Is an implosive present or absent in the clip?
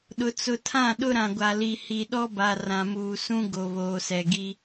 present